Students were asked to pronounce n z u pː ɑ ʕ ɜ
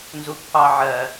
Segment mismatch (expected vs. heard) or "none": none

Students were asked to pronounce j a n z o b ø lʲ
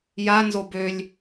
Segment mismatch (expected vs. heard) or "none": none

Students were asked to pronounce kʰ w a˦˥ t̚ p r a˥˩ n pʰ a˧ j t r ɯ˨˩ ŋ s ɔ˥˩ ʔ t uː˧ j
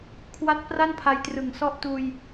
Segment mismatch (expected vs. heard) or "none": none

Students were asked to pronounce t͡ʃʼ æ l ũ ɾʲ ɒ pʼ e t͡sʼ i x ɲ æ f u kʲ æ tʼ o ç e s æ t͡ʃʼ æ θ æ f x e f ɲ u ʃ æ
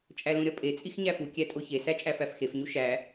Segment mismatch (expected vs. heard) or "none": θ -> f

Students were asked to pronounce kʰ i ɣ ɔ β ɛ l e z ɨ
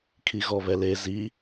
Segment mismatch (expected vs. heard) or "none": ɨ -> i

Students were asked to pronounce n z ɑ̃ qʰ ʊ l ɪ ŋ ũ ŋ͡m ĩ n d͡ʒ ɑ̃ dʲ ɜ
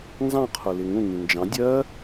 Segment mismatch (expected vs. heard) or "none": ŋ͡m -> ŋ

